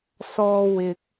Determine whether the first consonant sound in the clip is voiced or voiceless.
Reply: voiceless